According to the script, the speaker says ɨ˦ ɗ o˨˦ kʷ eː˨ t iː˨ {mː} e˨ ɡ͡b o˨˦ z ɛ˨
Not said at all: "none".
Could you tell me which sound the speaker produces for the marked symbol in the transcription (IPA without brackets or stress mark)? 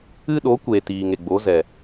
ŋ